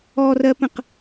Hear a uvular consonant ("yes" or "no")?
yes